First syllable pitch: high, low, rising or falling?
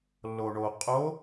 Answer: low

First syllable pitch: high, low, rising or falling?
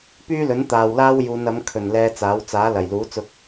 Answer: high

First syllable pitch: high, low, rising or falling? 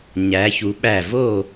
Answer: rising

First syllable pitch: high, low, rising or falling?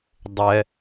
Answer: low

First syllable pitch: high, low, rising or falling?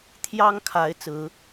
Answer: high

